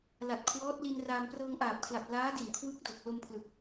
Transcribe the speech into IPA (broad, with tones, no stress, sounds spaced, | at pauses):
l a˨˩ t̚ kʰ w ɔː˦˥ t̚ l i˧ n r aː˧ m p r ɤː˧ ŋ ʔ aː˨˩ p̚ kʰ l a˨˩ p̚ l aː˦˥ d i˨˩ n kʰ w ɯ˦˥ k̚ d o˨˩ k̚ l o˧ m pʰ l ɯ˨˩ k̚